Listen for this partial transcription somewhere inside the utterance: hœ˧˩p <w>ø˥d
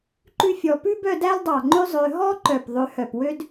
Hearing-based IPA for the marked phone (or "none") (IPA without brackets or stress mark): w